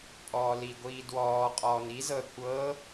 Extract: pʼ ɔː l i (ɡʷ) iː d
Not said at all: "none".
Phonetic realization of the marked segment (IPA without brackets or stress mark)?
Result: ɡʷ